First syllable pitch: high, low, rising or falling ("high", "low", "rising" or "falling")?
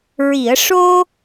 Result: low